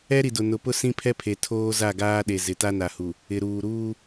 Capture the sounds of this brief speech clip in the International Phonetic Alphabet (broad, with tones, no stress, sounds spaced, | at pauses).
ɛ˦ ɾ i˨ d ʊ˨ n ʊ˨ p ʊ˦ s ĩ˦ pʰ ɛ˦ pʰ e˨ tʰ oː˦ z a˦˨ ɡ aː˦ ɗ e˨ z ɪ˨ t a˦ n a˨ h u˨ | ɪ˨ ɾ uː˨ ɾ uː˦